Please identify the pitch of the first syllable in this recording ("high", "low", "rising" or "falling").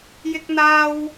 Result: high